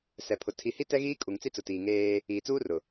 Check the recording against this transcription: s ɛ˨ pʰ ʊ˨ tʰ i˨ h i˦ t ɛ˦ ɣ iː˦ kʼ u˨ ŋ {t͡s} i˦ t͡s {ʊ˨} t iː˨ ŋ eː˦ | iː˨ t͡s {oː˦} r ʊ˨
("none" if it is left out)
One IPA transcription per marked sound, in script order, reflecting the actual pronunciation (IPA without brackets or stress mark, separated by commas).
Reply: t͡s, ʊ˨, uː˦